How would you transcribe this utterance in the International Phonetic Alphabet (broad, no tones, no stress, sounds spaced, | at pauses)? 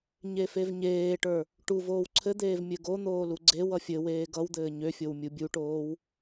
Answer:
ɲ e f e v ɲ eː ʈ ə˞ | ʈ u v oː w ǀʰ ɘ d̪ eː v mʲ ɘ ɡ o n̪ oː l u ɡ͡ǀ e w ʌ fʲ ɘ w eː ɡ ʌ w d̪ ɘː ɲ ø fʲ o w mʲ u bʲ u ʈ oː w